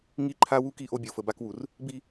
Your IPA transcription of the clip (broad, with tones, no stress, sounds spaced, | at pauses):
ŋ i˦ ǃʰ a˦ w u˦ k i˦˨ ʔ o˦ bʲ o˨ f ə˨ b a˦ k w u˨ r | b i˦